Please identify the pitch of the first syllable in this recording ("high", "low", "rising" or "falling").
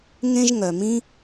high